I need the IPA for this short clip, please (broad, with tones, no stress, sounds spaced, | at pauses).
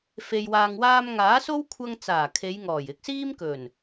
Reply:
f e˨ j w aː˨ ŋ w aː˧ m ŋ aː˨˥ s o˥ w kʷʰ ɐ˧ ŋ t͡s aː˨˩ kʰ e˨˧ j ŋ ɔː˨˩ j ɪ˧ k̚ s iː˥ m k ɵ˨˩ n